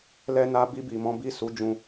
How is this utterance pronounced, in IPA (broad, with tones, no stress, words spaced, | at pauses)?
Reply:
lɛ˧na˧bi˧bi˨ mɔ̃˨˦bi˦˨su˨˦d͡ʒũ˧